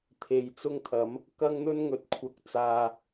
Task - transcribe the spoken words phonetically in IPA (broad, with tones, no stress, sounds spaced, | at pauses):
t̪ʰ e˨ j t͡s ʊ˥ ŋ t̪ʰ ɐ˨˥ m | k ɐ˥ ŋ n̪ ɵ˥ n ŋ ɵ˨˥ t̚ kʷʰ ɐ˧ k̚ t͡s aː˨